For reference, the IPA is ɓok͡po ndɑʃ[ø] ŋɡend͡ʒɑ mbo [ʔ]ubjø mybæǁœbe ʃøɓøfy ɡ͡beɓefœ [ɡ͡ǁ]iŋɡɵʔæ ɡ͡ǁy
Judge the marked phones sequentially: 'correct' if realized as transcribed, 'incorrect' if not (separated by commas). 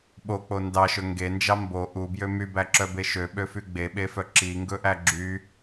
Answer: incorrect, correct, incorrect